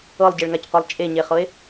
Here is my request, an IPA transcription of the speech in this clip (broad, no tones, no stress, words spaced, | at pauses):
ɤlˠɟeɭŋacqʷelˠ t͡ʃʼeɲeχɤe̯